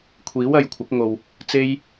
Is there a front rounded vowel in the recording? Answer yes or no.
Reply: no